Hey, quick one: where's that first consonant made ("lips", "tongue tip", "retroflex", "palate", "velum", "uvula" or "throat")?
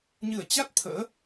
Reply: palate